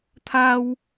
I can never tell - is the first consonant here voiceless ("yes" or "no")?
yes